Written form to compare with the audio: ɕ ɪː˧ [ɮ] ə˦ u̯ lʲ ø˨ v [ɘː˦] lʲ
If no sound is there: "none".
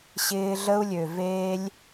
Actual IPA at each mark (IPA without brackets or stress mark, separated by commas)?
ɮ, eː˦